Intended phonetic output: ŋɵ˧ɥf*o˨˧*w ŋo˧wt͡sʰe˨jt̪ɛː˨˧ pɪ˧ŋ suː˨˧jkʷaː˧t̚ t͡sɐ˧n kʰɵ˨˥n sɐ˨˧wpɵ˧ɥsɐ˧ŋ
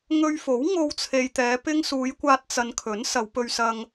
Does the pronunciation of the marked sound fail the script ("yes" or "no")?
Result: yes